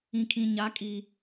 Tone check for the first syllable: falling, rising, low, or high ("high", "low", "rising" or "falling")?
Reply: low